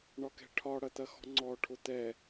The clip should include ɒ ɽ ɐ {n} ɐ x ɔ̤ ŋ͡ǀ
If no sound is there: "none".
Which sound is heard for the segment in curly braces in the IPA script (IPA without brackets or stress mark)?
t̪